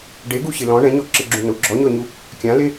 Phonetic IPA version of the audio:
ɖeɡuɕɪ lɔ̃ ɳɛ̃ɲɔǁɪɡ͡ǁũ nʊ ɡ͡ǁɔɲɔɲu | kʲãle

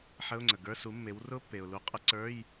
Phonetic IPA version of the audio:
ħə˧˥˧ʊ̯ŋ͡ǀə˩ɡə˞˧˥˧ su˩˥mːe˩˥w rʊ˦˥pːe˩ʊ̯ lu˩˥qʼə˧˥˧ǀə˞˧˥˧j

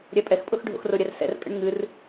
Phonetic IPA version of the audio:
ɾʲɛpʼɛxpʼʊx ɖʱo̰xrʊɾʲɛr sɛ̰rkʼə̰ɳ ŋɨr

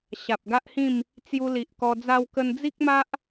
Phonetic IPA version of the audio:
ɕa˨p̚ɡa˦ʔhĩ˥˧m | t͡sju˧li˨ʔkɔ˧ d͡za˧wkə˧n d͡zi˦k̚ma˦ʔ

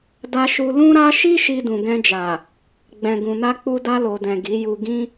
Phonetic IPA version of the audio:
da˧ʃu˧ lũ˦ɾa˦ ʃi˦ ʃi˧dũ˨ɡɛ̃˧d͡ʒa˨ | ɡ͡bɛ̃˨ɡũ˨na˧ k͡pu˧da˧lo˨dɛ̃˨ ɡi˨˦ju˧ ɡĩ˦

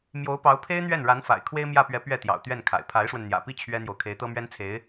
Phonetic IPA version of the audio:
mjo˧˥ʊ̯pɑ˧˥ʊ̯ pʰe˥ɪ̯n̪ɥɛ˥˩n ɻa˧˥nfa̰˨˩ɪ̯ kʰwe˥ɪ̯mjä˥˩pɥɛ˧˥ pɥɛ˥˩t̪jɑ̰˨˩ʊ̯ t̪ɥɛ˥˩nkʰa̰˨˩ɪ̯ pʰa˧˥ɪ̯ʂwə˧n n̪jä̰˨˩pi˥˩ t͡ɕʰɥɛ˥n̪jo˨ʊ̯ kʰe˧˥ɪ̯t̪ɤ˥mɥɛ˥nt͡sʰe˧˥ɪ̯

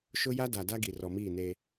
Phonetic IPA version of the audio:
ʃʊ˦ja˦ da˨da˦ ɡi˨rɔ˨ miː˦˨neː˦

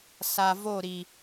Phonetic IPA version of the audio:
sa˨vo˦˨ɾi˨

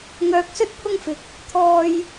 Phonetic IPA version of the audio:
ŋœː˧k̚sɵ˥t̚pʰʊ˥ŋfɪ˧k̚ | t̪ʰɔː˥j

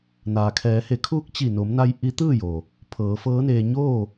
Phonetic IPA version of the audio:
naː˩kʰɛː˩˧he˩˧kʰuː˧˥k̚ t͡ɕi˧˩no˩˧mna˧j ʔi˧˥t̪ɯː˥˨jo˩ | pʰɤː˩˧ fɤː˧˥neː˧ ɲoː˥˨

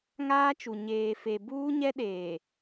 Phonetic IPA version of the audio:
ŋaː˦t͡ʃu˨ ɲeː˨ fe˨buː˦ɲɛ˦ɗeː˨

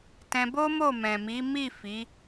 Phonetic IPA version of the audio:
tɛ̃˧bo˦ mo˦˨mɛ̃˨ mi˨˦mi˦˨ fi˨˦

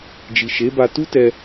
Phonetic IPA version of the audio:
d͡ʒi˨ʃe˨˦ba˧ tu˦ tɛ˧

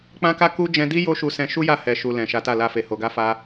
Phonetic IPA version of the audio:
k͡pã˦ka˦ ku˦ d͡ʒɛ̃˧di˦ jo˦ʃu˧ sɛ̃˧ʃu˦ja˦˨ hɛ˨ʃu˨ lɛ̃˨ʃa˨˦ta˦˨ la˧fe˨ ho˨ɡa˧fa˧

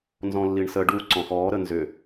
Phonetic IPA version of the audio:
nzɔ̃lːiɳsə ɖu ǀɔ̃xɔː ɾənzʏ

